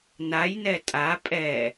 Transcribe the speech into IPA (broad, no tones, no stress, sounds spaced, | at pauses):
n a j n ɛ tʼ a pʼ ɛ